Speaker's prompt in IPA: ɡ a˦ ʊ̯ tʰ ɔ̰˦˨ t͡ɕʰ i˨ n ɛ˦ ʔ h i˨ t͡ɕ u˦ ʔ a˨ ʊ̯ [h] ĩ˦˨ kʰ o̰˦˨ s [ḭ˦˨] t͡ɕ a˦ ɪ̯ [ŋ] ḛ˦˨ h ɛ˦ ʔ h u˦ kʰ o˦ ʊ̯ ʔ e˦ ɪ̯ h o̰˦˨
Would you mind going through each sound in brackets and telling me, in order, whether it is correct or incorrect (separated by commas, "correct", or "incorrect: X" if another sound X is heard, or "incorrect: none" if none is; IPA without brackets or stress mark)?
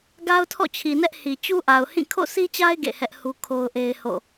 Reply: correct, incorrect: i˦, incorrect: ɡ